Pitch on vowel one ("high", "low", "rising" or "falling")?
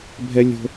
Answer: high